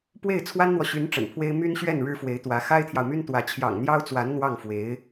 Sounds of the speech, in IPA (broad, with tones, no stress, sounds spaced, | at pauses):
p w e˥˩ ɪ̯ t͡sʰ w a˥ n n̪ w ɔ˨ ɕ y˧˥ n ʈ͡ʂ ə̰˨˩ n pʰ w e˥ ɪ̯ m y˥ n ɕ ɥ ɛ˥˩ n ɻ ɻ̩˥ f w e˧˥ ɪ̯ t̪ w ä˧˥ x a˥ ɪ̯ t̪ʰ j ɑ˨ ʊ̯ m y˥ n t̪ w ä˧˥ t͡ɕʰ j ɑ̰˨˩ ŋ n̪ j ɑ˥ ʊ̯ t͡s w a˧˥ n n̪ w ɑ˥˩ ŋ f w e˧˥ ɪ̯